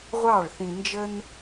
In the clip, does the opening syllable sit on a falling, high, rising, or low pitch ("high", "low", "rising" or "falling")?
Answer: falling